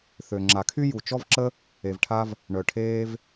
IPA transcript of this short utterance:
θ ø˨ ŋ͡ǁ a˨ kʰ y˥ j u˨ t͡ʃ ɔ˦ v ǁ ə˦ | e˨ v ʈʰ a˦ v | ɳ œ˨ ʈʰ eː˦ v

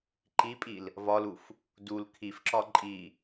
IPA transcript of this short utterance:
ǃ i pʼ i l | v ɒ l u f | d u l kʰ i f ǁ ɒ ǃʼ i

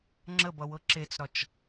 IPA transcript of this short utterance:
ŋ͡ǁ ə b ʌ w ɤ ǁ e t͡s ɾ ɒ t͡ʃ

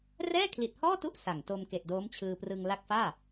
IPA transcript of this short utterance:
r ɛː˥˩ kʰ l i˨˩ t̚ h ɔː˥˩ t u˦˥ ʔ s a˨˩ ŋ t o˧ m k e˨˩ ʔ d oː˦˥ m t͡ɕʰ ɯː˧ p r ɯ˧ ŋ l a˦˥ k̚ f aː˥˩

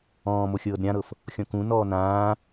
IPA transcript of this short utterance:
ɔ̃ː m o xʲ ɤː d ɾʲ ã ɾ ɤ f | xʲ ɔ̃ k ũ n ɔː n ãː

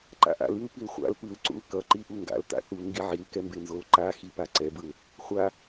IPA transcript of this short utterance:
ǃ a̰ ʔ a̰ l i l p i l χʷ a̰ l p ɯ l ǀ ṵ l k ʌ ǃ i ʔ u ŋ ɡ a̰ l t a̰ θ u l ŋ ɡ i ʕ i l k ɛ m b e n z o l ǃ a x i p a ǀ ɛ b ɯ l | χʷ a

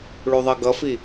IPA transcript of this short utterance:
ɭ u ðˤ ʌ ɡ ʌ f i

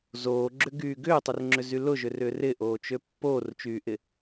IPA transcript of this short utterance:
z oː ɡ͡ǁ ʏ ɡ yː ɡ ʏː tˤ ɪ r ŋ͡ǁ ʏ z y l ʊ ʒ ʏ r ʏː r ɪ ʔ oː t͡ʃ ø pː oː r t͡ʃ yː ʔ ɪ

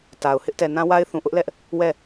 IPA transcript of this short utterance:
t a˨ ʊ̯ h ɪ˦ ʔ t ɛ˨ n ã˦ w a˦ ɪ̯ θ ũ˨ ʔ ʊ˦ ʔ l ɛ˦ ʔ | w ɛ˦˨

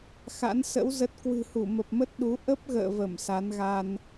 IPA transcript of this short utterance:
x a̰˧˥ n s ə̰˧˥ w z ə˦˥ t̚ k w ɨ̤˨˩ h u˧˩ m ə˨˩ p̚ m ə˦˥ t̚ ɗ u˨˦ ʔ ə˦˥ p̚ ɣ ə̰ː˧˨ v ə˧˩ m s a˨˦ n ɣ a˧ n

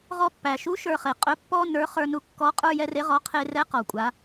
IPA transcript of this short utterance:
ʁ ɔ˧ pː æ˩ ʃ u˧˥ ʃ ə˞˧ χ e˩ qʼ ɵ˧˥ pː ɔ˥ n ə˞˧˥ χ ə˞˧ n u˧ kː ɔ˧˥ qʼ ə˞˥ j ɛ˧˥ r e˧˥ ʁ ɔ˧˥ qʰ e˧ r ɛ˧˥ q ɔ˩ kʷʼ a˩˧

